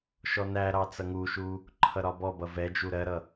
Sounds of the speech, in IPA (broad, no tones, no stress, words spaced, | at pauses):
ʃɔnæɾɑ t͡sʌŋuʃu | ǃʰʌɾɒbɔbʌ vɛd͡ʒu ɾɜɾʌ